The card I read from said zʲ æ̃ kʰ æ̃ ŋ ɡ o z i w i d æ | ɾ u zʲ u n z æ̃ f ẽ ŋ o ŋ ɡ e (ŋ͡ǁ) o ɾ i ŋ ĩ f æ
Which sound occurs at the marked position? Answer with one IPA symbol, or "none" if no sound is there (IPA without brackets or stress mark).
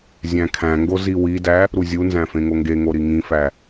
ŋ